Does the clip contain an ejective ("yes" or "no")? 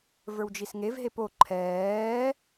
no